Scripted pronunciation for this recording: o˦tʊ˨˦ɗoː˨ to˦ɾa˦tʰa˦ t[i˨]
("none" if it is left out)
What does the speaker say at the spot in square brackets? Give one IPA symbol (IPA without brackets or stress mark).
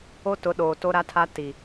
i˨